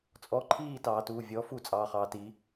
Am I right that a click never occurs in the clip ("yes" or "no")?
no